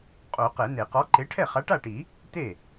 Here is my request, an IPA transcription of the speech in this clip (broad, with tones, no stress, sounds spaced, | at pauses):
qʼ o˨˩˦ q ɛ˨˩˦ n e˨˩˦ q ɔ˨˥ ǃ e˨˥ ʈʰ ɛ˥˩ χ a˨˥ ʈ a˥˩ ʈ i˨˩˦ | t e˥˩